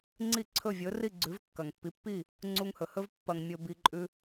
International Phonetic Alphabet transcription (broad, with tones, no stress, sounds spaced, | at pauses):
ŋ͡ǀ i˥˩ ǀʰ ɵ˥˩ vʲ ɵ˩˥ r i˥˩ ɡ͡ǀ ʉ˩˥ v kː ɐ˩ ŋ pː i˩˥ pː i˥˩ | ŋ͡ǀ u˧ ŋ h ɵ˩ h ɵ˥ v pː ɐ˧ ŋ mʲ ɵ˧ b i˧ ǃʼ ʉ˧